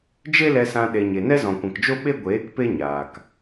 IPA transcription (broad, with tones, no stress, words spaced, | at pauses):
d͡ʒe˦lɛ˧sã˧ ɗe˧ɲe˧ nɛ˦zɔ̃˨kʷɛ̃˨kd͡ʒo˦ ɓe˦ɡʷeː˨˦k pe˦ɲaː˨k